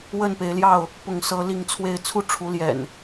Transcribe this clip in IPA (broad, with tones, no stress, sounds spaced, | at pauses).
w ə˥˨ n p e˨˦ ɪ̯ l j ɑ˥˨ ʊ̯ | p ʊ˥˨ ŋ s ɤ˦ l i˥˨ ŋ t͡sʰ w e˥˨ ɪ̯ t͡sʰ u˦ ʈ͡ʂʰ u˨˦ l j ɛ̰˨˩ n